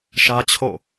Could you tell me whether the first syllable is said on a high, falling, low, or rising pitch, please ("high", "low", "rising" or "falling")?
high